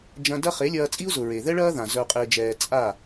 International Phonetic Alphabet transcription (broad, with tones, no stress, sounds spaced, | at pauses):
d͡ʒ ɐ̃˧ d ɐ˦ χ e˨˦ lʲ ɐː˧ t͡sʼ i˦ u̯ z ʊ˨ ɹ e˨ ð ɛ˦ ɭ ɐː˦ ð ã˨ z œ˧ qʼ ɪː˧ d͡ʒ ɛː˧ t͡sʼ a˦˨